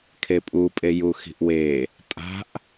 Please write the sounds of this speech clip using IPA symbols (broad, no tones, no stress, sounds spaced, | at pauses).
kʰ e pʼ u pʼ e j u x i̤ ʔ w e | tʼ a̤ ʔ